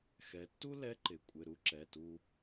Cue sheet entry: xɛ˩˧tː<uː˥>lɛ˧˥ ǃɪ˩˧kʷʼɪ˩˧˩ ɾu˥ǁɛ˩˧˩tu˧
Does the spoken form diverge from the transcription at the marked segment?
yes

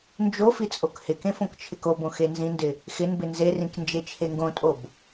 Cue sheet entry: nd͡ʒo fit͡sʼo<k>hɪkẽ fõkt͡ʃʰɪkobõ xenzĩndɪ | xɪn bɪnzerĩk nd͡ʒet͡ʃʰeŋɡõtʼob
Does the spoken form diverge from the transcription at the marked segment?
no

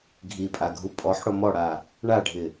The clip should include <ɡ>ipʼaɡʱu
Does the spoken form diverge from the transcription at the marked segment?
yes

